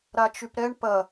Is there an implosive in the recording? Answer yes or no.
no